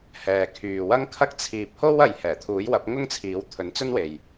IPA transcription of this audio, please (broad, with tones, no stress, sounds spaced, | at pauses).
h ɛː˨ kʰ yː˨ w ɐ˥ ŋ kʰ ɐ˥ k̚ t͡sʰ iː˧ p̚ h o˥ w ɐ˨ j h ɛː˨˩ t̪ʰ uː˨˥ j w ɐ˨˥ p̚ ŋ ʊ˥ ŋ t͡sʰ iː˨˥ w t̪ʰ ɵ˨˥ n t͡s ɵ˥ n w e˨ j